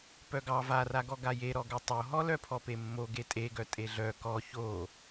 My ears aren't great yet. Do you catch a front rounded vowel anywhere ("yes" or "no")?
yes